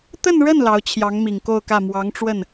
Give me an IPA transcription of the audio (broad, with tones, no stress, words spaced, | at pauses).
t̪ə˥˧nɻə˥˩n lɑ˧˥ʊ̯t͡ɕʰjɑ˧˥ŋmi˨˩ŋ ko˥˧ʊ̯kä˥˩ mwɑ˧˥ŋʈ͡ʂwə˥˩n